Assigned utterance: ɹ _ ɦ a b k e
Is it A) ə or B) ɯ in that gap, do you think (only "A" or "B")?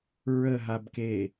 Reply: A